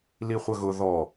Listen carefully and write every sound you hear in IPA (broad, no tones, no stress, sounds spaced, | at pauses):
l i χʷ ɐ ɣ ʊ ð ɔ